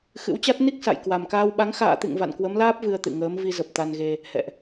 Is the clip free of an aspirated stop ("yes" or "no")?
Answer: yes